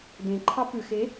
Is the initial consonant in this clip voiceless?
no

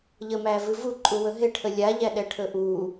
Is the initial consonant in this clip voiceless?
no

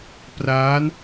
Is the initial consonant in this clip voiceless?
yes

